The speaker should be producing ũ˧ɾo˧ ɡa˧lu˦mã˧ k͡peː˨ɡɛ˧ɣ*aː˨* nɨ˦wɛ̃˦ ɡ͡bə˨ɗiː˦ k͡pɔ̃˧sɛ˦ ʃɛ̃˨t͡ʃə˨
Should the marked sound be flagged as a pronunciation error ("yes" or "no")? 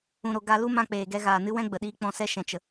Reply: no